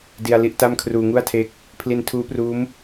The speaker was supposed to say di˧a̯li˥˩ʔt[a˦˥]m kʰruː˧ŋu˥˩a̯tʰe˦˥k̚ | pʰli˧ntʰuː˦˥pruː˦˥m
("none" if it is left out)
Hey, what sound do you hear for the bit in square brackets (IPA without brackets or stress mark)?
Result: a˥˩